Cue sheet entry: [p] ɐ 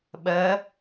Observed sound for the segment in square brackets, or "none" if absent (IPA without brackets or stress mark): ɓ